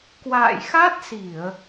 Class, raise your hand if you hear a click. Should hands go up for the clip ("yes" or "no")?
no